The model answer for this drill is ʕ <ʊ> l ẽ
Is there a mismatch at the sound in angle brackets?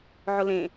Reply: no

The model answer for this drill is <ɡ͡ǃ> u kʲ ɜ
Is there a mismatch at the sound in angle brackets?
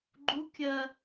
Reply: no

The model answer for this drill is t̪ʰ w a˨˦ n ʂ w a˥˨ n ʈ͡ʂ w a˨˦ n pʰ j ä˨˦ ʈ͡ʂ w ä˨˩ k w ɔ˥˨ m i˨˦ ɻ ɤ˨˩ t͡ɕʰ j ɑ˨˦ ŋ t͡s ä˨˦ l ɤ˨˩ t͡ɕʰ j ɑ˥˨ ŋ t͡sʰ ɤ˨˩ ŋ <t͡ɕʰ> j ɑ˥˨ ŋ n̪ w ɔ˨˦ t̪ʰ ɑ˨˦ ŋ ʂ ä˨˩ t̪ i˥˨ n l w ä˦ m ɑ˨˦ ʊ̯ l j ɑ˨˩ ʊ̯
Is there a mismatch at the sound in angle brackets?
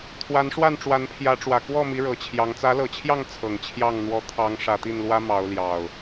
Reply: no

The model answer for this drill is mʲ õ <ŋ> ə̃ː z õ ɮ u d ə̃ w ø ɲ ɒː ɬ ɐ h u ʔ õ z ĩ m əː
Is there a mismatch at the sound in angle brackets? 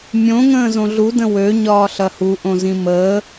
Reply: no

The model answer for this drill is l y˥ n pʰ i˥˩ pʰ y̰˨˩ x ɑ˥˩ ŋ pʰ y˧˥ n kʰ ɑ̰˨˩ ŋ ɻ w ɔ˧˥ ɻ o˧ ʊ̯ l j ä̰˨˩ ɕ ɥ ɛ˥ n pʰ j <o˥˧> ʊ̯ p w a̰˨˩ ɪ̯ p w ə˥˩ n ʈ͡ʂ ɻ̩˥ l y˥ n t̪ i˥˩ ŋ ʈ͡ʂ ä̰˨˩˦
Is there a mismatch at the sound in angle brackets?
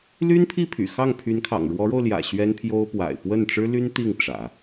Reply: yes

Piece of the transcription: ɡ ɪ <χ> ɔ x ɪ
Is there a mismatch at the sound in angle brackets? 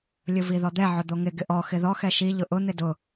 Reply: yes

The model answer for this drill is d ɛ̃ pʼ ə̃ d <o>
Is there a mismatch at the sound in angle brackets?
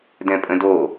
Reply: no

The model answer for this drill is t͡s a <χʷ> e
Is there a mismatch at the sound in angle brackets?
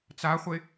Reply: no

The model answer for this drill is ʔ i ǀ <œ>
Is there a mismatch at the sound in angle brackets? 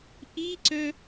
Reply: no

